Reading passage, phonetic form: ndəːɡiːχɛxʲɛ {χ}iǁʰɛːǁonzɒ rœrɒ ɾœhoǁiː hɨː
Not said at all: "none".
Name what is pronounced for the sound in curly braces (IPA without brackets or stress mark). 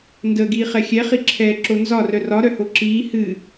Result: χ